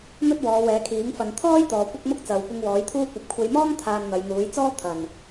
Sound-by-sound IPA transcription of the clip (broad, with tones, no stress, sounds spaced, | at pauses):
n̪ ɵ˥ t̚ w ɔː˨˧ w ɛː˨˧ kʰ iː˨˥ ŋ f ɐ˨ n t̪ʰ ɔː˥ j t̪ ɔː˨ kʷ ɐ˥ k̚ m ʊ˥ k̚ t͡s ɐ˨ w kʷ ɪ˧ ŋ w ɔː˨˥ j t̪ʰ uː˥ kʷ ɐ˨ p̚ kʷʰ e˨˧ j m ɔː˥ ŋ t̪ʰ aː˧ n n̪ ɐ˨˧ j n̪ uː˨˥ j t͡s ɔː˥ t̪ʰ ɐ˨˩ n